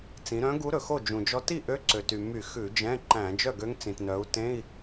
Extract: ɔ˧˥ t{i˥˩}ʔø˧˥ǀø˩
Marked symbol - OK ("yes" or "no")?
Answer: yes